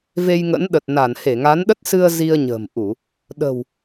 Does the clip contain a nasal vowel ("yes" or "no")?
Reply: no